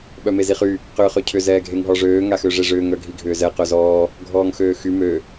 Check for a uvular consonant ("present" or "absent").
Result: present